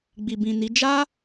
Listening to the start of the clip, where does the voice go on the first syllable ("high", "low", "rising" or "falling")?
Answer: low